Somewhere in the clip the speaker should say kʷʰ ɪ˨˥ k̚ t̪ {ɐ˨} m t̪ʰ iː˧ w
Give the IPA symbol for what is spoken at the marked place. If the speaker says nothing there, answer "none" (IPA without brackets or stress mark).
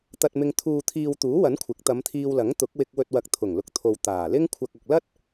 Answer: ɐ˨˧